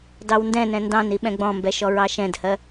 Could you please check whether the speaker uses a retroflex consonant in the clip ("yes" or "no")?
no